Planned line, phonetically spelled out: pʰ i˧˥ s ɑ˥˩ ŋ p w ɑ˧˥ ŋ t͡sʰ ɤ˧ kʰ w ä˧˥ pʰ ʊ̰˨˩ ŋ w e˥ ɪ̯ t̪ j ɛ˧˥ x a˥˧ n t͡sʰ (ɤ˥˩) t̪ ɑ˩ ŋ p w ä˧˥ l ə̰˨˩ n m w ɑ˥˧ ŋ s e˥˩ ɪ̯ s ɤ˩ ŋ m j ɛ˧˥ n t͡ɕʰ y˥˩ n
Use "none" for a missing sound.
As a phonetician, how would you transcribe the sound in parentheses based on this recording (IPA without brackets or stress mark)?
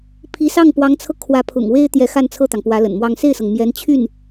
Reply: ɤ˥˩